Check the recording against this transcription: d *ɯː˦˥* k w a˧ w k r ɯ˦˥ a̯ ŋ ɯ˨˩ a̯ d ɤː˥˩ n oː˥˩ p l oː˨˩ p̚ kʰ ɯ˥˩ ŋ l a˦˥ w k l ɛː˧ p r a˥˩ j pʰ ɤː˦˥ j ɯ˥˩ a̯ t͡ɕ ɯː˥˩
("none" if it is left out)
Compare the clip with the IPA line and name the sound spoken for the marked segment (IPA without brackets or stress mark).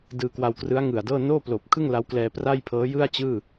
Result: ɯː˧